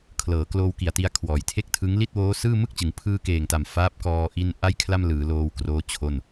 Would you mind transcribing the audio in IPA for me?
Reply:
kʰ l ɤː˩˦ k l oː˧ w k i˨˩ a̯ t i˧ a̯ kʰ w ɔː˨˩ j tʰ e˥˩ k̚ tʰ ɯ˦˥ ŋ l i˥˩ t̚ w oː˦˥ s ɯː˥˩ m ɯ˥˩ k̚ t͡ɕ ɯ˩˦ ŋ pʰ ɯː˧ k eː˨˩ ŋ t a˨˩ m f aː˦˥ p̚ k ɔː˧ ʔ i˧ n ʔ a˥˩ j kʰ l a˥˩ m l ɯː˩˦ l oː˧ w k r oː˦˥ t͡ɕʰ o˥˩ n

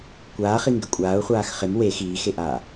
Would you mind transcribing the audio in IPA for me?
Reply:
kʷ aː χ i ŋ ɡ ɪ kʷʼ aː ʊ̯ χʷ aː x χ ɪ m w e x iː x e ʔ aː

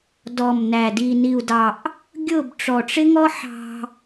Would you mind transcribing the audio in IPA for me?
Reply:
d ɔ˨ m n æ˨ d i˨ n i˨ u̯ d ɑ˨ ʔ | ɡʲ ʊ˦˨ b ʈ͡ʂ ɔ˨ ʈ͡ʂ ɪ˦ ŋ ɔ˦ ħ ɑ̤˧

